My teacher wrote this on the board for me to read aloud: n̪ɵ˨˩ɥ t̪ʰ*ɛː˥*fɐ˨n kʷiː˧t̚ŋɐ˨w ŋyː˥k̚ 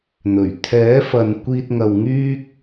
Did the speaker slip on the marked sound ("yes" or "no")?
yes